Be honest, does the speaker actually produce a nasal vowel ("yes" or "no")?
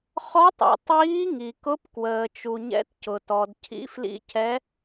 no